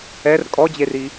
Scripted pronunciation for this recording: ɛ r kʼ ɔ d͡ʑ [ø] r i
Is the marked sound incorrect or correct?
incorrect